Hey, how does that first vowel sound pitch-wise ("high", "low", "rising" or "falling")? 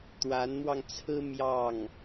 rising